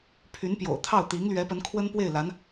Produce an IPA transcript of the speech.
pʰ y˧˥ n p j o̰˨˩ ʊ̯ t̪ʰ ɑ˥˩ ʊ̯ t̪ i˧˥ ŋ l ɥ ɛ˧˥ p ə˧˥ n kʰ w ə˥ n p w e˥˩ ɪ̯ l a˧˥ n

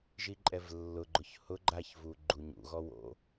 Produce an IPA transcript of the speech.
ʒ i ǃʼ ɛ v lː ʊ ɡ͡ǃ ʊ ç h ʊ ɡ͡ǃ a ç v u ɡ͡ǃ u ɲ ṵ ɣ ɔ w o̰

